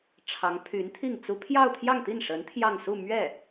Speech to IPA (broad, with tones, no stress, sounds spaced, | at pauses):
ʈ͡ʂʰ ɑ˧˥ ŋ pʰ y˧˥ n t̪ʰ i˥˩ ŋ t͡s u˥ pʰ j ɑ˥˧ ʊ̯ t̪ʰ j ɑ˥˧ ŋ t̪ i˥˩ n ʂ ə˧˥ n t̪ʰ j ɑ˥˧ ŋ s u˥˧ m ɥ ɛ˥˩